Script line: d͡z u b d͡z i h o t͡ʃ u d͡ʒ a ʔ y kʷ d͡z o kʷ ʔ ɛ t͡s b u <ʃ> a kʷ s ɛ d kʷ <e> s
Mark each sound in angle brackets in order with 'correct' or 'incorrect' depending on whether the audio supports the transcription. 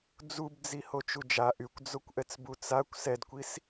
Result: incorrect: t͡s, incorrect: i

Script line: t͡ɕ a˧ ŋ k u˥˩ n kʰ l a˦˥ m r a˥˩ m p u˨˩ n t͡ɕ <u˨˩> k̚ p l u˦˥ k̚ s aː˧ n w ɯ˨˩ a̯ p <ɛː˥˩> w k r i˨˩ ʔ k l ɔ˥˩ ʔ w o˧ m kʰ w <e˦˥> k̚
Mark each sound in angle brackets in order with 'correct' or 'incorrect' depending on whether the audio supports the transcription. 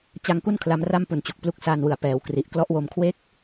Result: correct, incorrect: ɛː˩˦, correct

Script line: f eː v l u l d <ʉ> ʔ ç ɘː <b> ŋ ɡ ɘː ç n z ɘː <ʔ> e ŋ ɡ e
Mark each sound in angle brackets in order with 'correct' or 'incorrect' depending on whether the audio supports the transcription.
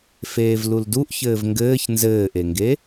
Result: incorrect: u, incorrect: v, correct

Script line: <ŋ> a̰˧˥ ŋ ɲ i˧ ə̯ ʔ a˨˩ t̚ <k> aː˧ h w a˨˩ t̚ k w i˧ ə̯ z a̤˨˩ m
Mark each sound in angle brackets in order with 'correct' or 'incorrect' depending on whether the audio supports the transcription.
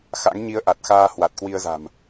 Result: incorrect: x, incorrect: x

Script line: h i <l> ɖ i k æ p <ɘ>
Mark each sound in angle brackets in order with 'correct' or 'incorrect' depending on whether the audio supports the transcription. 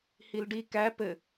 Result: correct, correct

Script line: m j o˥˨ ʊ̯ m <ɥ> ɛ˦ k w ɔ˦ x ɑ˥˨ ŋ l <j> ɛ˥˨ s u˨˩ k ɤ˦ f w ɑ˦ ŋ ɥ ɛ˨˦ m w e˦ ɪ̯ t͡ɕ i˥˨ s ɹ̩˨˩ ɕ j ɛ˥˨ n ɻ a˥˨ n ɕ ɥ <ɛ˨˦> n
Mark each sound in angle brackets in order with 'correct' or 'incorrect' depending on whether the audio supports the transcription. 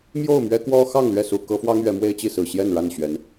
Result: correct, incorrect: ɥ, correct

